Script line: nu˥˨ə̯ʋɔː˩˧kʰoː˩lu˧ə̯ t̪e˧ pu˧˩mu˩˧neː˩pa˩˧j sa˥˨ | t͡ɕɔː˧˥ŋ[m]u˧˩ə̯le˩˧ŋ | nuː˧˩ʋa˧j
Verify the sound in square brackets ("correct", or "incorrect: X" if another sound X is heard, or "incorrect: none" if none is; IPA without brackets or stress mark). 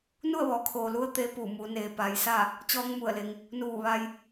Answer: correct